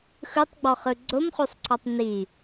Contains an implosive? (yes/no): no